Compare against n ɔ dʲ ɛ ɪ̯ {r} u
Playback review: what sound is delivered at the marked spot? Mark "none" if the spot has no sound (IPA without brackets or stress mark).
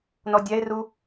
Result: r